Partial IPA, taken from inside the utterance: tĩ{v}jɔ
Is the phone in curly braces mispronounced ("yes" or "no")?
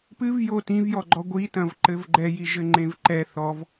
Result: no